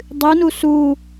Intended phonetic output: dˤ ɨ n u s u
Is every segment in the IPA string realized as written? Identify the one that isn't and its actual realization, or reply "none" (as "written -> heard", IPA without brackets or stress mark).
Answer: none